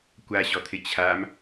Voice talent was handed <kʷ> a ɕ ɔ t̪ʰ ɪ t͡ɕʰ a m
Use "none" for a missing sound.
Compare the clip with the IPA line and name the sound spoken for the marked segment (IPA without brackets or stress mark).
kʷ